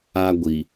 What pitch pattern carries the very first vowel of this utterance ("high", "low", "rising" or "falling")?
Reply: high